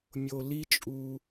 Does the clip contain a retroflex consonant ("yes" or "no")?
no